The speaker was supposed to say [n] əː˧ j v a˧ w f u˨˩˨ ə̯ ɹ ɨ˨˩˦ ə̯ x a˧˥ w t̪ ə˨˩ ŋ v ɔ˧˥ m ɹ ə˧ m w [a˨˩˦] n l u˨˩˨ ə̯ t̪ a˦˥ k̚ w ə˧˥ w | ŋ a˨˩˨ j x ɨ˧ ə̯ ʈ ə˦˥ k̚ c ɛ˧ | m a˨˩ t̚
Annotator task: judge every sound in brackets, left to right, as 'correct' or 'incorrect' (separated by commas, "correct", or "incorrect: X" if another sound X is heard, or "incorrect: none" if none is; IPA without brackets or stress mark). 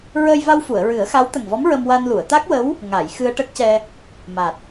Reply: incorrect: ɹ, incorrect: a˧